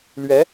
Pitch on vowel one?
rising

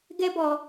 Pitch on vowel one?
high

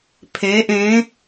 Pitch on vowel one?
rising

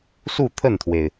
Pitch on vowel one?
falling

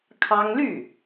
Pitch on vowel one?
high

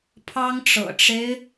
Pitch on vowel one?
high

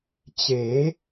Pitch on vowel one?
rising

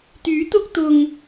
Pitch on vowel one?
rising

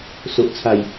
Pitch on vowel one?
low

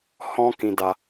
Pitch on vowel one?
high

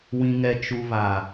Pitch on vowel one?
low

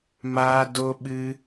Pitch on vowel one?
high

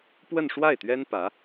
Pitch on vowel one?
falling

